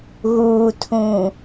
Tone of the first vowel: low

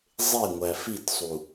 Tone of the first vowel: falling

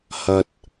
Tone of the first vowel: low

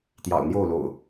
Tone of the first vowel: low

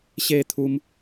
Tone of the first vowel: falling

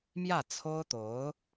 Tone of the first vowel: falling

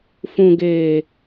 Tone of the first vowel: low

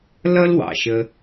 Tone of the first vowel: high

